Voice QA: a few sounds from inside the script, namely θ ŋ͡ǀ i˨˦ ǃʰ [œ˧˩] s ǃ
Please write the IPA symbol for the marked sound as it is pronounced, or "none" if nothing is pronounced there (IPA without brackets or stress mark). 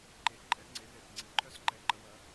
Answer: œ˦˥